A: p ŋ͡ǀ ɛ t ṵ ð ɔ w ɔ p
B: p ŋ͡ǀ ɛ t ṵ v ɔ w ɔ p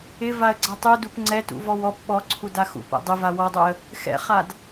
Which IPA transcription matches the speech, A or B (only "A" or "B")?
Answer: B